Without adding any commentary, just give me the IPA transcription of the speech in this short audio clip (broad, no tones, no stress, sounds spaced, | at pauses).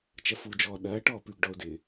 t͡ʃ ɐ f u d͡ʒ ɔː ɗ ɐː ʈ ɔː p ʉ ɡ ɖ ɔ ʊ̯ d ɪː